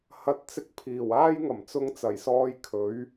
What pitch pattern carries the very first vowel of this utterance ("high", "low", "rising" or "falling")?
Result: rising